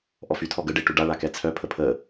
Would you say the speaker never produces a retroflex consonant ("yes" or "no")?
no